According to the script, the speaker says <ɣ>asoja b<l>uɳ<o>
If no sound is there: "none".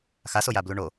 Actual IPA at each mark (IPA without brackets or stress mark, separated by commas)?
x, l, o